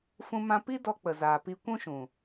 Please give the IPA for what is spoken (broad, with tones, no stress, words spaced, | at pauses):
fũ˧mã˧ pi˦dɔ˧ k͡pə˨zaː˨pi˧ kʷũ˦ʃũ˨